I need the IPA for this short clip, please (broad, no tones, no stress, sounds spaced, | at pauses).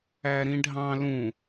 æ ɾ ĩ ɖʱ ɑ̃ l ũ